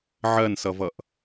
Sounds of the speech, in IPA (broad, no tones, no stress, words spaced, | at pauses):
ʕɜnsʌvʌʔ